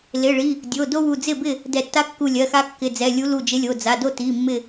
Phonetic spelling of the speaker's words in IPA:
l ɪ˩˧˩ ɭ i˩˧˩ | dʲ o˩˧˩ d o˦ w u˧˩ d͡z ɪ˥˩ b ɪ˥˩ | d ɛ˧˩ tː a˦ kː u˧˩ lʲ ɜ˩˧˩ x a˦ kː ɪ˩˧˩ d͡z ɛ˩˧˩ lʲ u˨˥ l u˧˩ d͡ʒ ɪ˨˥ lʲ o˩˧˩ d͡z a˩˧˩ d o˥˩ t i˩˧˩ mː ɪ˧˩

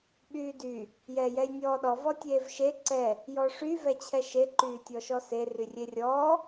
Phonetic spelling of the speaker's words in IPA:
ɓ yː d y | j ɛː j ɛ j nʲ ɔː ɗ ɔ v ɔ tʲ eː v ʃ e ǀ ɛ | j ɔ ʂ y v ɛ t͡ɕʰ ɛ ʃ e ǃ yː tʲ ɔ ʃ ɔ s e r y rʲ e rʲ ɔː

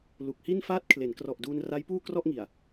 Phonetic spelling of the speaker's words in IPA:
l u˨˩ k̚ h i˥˩ n f aː˦˥ t̚ kʰ l e˩˦ n k r ɔ˨˩ ʔ d uː˧ n r a˦˥ j p uː˥˩ k r ɔ˥˩ ʔ ŋ i˨˩ a̯

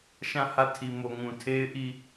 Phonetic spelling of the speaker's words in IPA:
ʃ ã˦˨ h ä˦˨ tʰ i˨ m o˨ ŋ ũ˨ tʰ e˦ ɪ̯ ʔ i˦˨

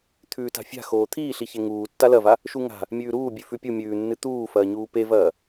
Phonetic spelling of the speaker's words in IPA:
t̪ʰ ʉː t a̤ fʲ a̤ x oː t̪ʰ iː ɬ i ç e ŋ uː tː a l ɐ v a | ʃ u ŋ a̤ | mʲ ʉː ɾ uː bʲ ʉ f ʉ pʲ u mʲ ʉː nː ɨ t̪ uː f ɐː ɲ uː p e v ɐː

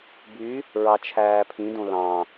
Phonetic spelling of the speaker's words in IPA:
b y | ɹ ɑ t͡ʃʰ æː pʰ ĩ d õ l ɑ̃

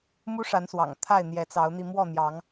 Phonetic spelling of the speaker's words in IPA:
m u˦ ʂ a˨˦ n s w ɑ̰˨˩ ŋ t̪ʰ a˥˨ ɪ̯ n̪ j ɛ˨˦ t͡s ɑ˨˦ ʊ̯ n̪ i˧ m w ɔ˥˨ n̪ j ɑ˨˦ ŋ

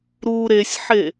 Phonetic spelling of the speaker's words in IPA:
ɾ uː ɾ e sʲ ħ e

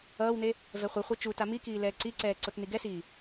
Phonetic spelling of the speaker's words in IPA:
ʌː w n̪ e | v ɛ χʷ i χʷ ɛ t͡ʃ u t a m i k iː l ɛː ǀ i ǀ ɛː ǀ o t n̪ i ɡ ɛ s iː

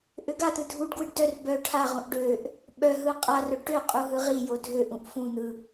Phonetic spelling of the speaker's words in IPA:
ʔ ø ɡ a t̪ ɯ dʱ u ɖ ɡ w ɯ ɖ d œ r b œ ʈʰ a ʁ ũ ʔ ɖ ø ʔ | ɓ œ ɦ ɯ qʼ a r œ ɖ ʈ ø qʼ u ɦ ɯ ʁ i j o dʱ ø ʔ ũ ʔ f ũ n̪ ɯ

